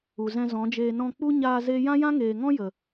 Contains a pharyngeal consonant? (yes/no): no